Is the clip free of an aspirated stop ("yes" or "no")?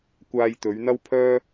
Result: no